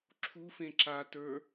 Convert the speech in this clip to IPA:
ǁʰ u f ẽ ǁ a t ə˞

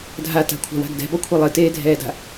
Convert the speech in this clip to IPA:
dʱ a t a̤ kʷʰ a̤ w a̤ ɡ d ɛ̤ b ɔ kʷʰ ɨ lˠ ɨ t eː dʱ ɛː d a̤

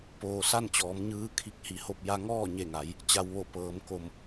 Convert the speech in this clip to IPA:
p oː˩ s a˥˨ n t͡ɕ ɔː˩˧ m ɲ ɯː˧˥ kʰ i˧˥ k̚ h i˩˧ h o˥˨ p̚ j a˧ ŋ ɔː˥˨ ɲ e˧˩ ŋ a˩˧ j | t͡ɕ a˩ w ʋ o˧˩ p ɤː˩˧ m k o˧˩ m

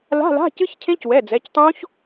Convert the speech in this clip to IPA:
l a̤˧˥˧ l a̤˧˥˧ c ɨ˦˥ ç cʰ ẽ˦˥ c w ɛ˩˧˩ d͡z ɛ˩˧˩ c tˤ õ˦˥ ç

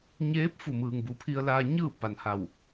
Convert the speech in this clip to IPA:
ɲ eː˧˥ p̚ f u˧˩ m ɯː˩ ŋ b u˩ pʰ i˧ ə̯ l aː˧ ɲ ɯː˥˨ p a˩ n h a˧˩ w

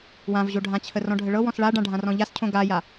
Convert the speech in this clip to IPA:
w ã v ʑ o ɖʱ ã t͡ɕʰ ə r ɔ̃ ɖʱ ə ɭ ɤ w ɔ̃ s ɭ a ɖ ã ɖʱ ã r ɔ̃ ʎ a s cʰ õ ɡ a j a

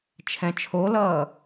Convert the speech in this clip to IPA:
t͡ʃʰ ɛ̃ t͡ʃʰ o l ʌː

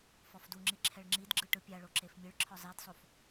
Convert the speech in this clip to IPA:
f ɔ f d u ŋ͡ǁ i ǁʰ ɛ ɭ ŋ͡ǁ i d ɡ͡ǁ ɯ ʈ ɯ pʲ a ɭ o ǁ e f mʲ ɯ ɭ ǁʰ ɔ zˤ i d sˤ o f

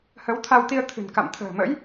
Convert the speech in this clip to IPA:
h ə˨˦ w t̪ʰ a˧ w t̪ i˧ ə̯ t̪ʰ ɨ̤˨˩ n k a̰˧˨ m t̪ʰ ə̤ː˨˩ m ə̰˧˥ j

